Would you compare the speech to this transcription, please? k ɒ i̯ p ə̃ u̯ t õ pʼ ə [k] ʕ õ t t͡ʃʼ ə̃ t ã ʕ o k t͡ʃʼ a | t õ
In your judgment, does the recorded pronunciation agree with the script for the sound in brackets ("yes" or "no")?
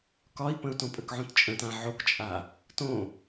yes